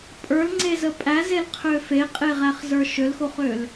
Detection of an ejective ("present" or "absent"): present